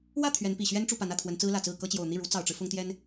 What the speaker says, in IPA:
w ä˥˩ t̪ʰ ɥ ɛ˧˥ n p i˨˩ ɕ ɥ ɛ˥ n ʈ͡ʂ u˥˩ p a˧˥ n ä˥˩ t̪ʰ w ə˧˥ n t͡s ɹ̩˥ l ä˨˩ t͡s ɹ̩˥˩ k ɤ˥ t͡ɕ j o˨˩ ʊ̯ n̪ i˥˩ ɻ u˧˥ t͡s ɑ˨˩ ʊ̯ ʈ͡ʂ ɻ̩˦ f ʊ˥ ŋ t̪ j ɛ˥ n

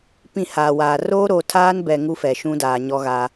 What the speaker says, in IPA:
p ĩ˦˨ h aː˨ w aː˨ r oː˦ ɾ oː˨ tʰ aː˦ n b ɛ˨ ŋ u˦ f ɛ˨ ʃ ũ˦ d aː˨ ɲ ɔ˦ ɣ a˦

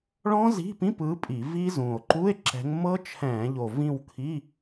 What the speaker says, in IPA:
ɭ ɔ̃˦˥ z i̤˧˥˧ p ĩ˧˥˧ p ɯ˨˦ pʼ i˧˩˧ v i˦˥ z ũ˨˩ o̯ ǃ u˧˥˧ e̯ ǁ ɛ̤˨˦ ŋ m ɤ˦˥ t͡ʃʰ ɛ̃ː˧˩˧ ʎ o˨˩ v ĩ˦˨ w kʰ i˧˥˧

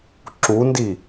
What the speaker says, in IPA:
ǁ u n d i

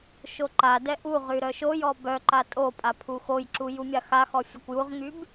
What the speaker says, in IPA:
ʃ o ǃ a d ɛ ʔ u ʁ y ɾ œ ʃ o j ɔ b œ ǃ a tʼ o pʼ a pʰ u x o j ǁ u j u mʲ a x a x ɔ fʲ ɛ kʷ j u ʁ ŋ y b

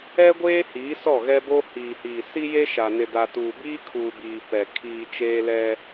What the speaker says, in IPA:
ɛ˦ ɡʷ eː˦ h iː˨˦ s ɔ˦˨ ɣ ɛ˦ b o˦ h iː˨ h iː˨ s i˦ j e˦ ʃ a˨ n ɪ˨ d a˨ t uː˨ b iː˦ kʰ uː˨ b iː˨ p ɛ˨ kʰ iː˨ t͡ʃ eː˦ l ɛ˦

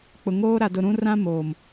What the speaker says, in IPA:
k͡p ʊ˨ ŋ oː˦ ɾ a˨ d ʊ˨ ɾ ũ˦ r ã˦ m oː˨ m

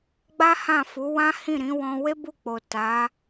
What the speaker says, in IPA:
ɡ͡b a˦ h ã˦˨ f u˨˦ w ã˦ h ĩ˦˨ ɾ ĩ˨˦ w ɔ̃˧ w e˦ b u˦˨ k͡p o˨ t a˨˦

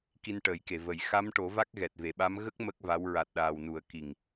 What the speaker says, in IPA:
k i˧ n ʈ əː˨˩˦ j k e˨˩˨ v ə˨˩˦ j x a˧˥ m ʈ o˨˩˦ v a˦˥ k̚ ɣ ɛ˨˩ t̚ v e˨˩˨ ɓ a˧˥ m ɣ ə˦˥ k̚ m ə˦˥ k̚ v a˧˥ w ɹ a˨˩ t̚ ɗ aː˨˩ w n u˨˩˦ ə̯ k i˨˩ ŋ

